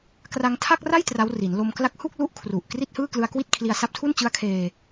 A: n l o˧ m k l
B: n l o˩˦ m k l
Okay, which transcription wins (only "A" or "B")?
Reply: A